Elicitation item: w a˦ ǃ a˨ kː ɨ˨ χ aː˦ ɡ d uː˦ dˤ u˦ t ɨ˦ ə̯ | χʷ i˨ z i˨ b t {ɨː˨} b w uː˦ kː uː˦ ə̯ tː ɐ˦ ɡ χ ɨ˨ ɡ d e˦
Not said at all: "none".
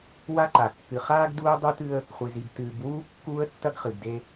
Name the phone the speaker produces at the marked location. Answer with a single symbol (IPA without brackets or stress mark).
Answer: ɨː˨